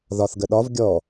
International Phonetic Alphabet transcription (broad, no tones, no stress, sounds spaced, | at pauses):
ð ɒ θ ɡ ə ɗ ɒ v ɡʲ ɔ